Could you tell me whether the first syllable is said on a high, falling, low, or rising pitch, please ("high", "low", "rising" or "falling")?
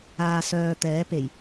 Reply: low